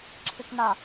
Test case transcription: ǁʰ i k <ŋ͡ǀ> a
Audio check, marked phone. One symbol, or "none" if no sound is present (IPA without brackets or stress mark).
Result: n